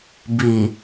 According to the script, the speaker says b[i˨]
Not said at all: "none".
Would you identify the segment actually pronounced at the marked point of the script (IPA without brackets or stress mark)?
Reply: i˨